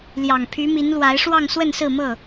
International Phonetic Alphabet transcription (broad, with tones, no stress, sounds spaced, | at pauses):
l j ɑ˨˩ ŋ pʰ y˨˦ m i˨˦ n l w a˨˦ ɪ̯ ʂ w ɑ˥˨ ŋ s w ə˥˨ n s ɹ̩˥˨ m ɤ˥˨